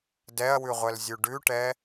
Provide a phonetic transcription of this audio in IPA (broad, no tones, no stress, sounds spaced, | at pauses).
d ɛ ɐ̯ w ʉ ʁʷ ɛ l zʲ ʉ ɖ ʉ ʈ ɛ